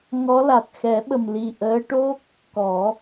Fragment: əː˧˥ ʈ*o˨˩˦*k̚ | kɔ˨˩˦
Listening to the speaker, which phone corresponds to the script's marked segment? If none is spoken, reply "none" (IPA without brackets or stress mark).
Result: o˦˥